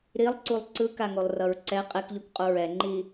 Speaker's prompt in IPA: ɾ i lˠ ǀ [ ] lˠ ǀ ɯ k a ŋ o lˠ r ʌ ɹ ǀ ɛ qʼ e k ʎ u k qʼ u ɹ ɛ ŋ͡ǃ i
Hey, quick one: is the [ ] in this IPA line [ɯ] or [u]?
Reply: u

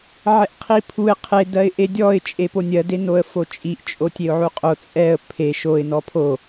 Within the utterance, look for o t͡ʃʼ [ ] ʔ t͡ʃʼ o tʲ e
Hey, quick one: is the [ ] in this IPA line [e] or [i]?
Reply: i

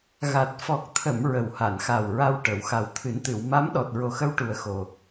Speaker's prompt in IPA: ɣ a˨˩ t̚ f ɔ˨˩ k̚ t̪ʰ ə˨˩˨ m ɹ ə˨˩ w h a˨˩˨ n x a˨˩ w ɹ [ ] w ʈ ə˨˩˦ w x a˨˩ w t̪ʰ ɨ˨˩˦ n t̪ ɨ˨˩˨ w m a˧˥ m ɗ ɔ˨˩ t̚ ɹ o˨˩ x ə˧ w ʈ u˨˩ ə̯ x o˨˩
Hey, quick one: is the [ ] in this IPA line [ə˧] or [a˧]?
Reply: a˧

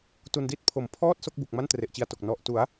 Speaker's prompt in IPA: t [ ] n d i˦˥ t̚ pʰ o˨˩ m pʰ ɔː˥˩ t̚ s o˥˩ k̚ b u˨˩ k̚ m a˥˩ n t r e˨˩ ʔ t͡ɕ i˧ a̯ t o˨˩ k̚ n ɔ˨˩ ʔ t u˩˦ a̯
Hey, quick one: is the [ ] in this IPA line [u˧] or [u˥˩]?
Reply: u˧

